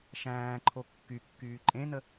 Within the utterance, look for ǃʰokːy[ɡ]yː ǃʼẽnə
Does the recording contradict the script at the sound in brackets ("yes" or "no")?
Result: yes